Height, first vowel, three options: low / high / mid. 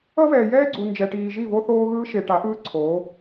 mid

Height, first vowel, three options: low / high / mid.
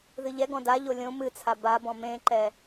high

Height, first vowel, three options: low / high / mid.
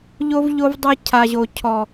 mid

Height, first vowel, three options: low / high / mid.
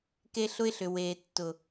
mid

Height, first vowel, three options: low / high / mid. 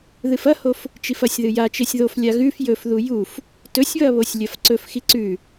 high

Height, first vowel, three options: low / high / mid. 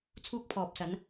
high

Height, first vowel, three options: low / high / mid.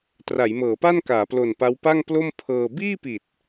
low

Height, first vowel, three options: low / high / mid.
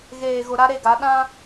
mid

